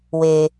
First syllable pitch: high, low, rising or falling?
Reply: low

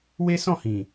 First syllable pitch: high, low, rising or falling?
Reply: high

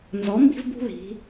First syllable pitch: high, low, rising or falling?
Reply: rising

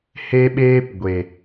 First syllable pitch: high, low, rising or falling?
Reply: high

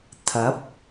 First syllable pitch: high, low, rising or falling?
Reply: rising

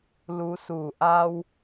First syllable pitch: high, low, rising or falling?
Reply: rising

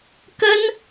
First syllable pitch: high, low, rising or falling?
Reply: high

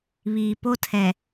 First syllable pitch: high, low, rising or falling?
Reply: low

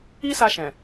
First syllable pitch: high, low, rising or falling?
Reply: high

